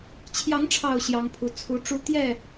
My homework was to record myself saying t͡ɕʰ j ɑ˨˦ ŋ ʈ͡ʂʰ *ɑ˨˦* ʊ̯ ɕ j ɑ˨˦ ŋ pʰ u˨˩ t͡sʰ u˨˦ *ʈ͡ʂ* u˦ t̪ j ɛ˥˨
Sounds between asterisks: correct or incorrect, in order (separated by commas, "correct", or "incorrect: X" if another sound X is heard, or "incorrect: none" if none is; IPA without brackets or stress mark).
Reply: incorrect: ɑ˨˩, correct